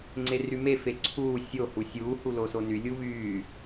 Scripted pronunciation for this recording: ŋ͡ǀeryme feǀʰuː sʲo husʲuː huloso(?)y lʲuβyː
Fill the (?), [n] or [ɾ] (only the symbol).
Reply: n